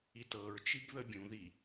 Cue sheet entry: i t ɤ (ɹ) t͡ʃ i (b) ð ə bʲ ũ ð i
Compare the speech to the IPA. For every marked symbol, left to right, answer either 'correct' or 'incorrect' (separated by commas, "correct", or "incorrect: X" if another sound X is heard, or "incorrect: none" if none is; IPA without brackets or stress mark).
correct, correct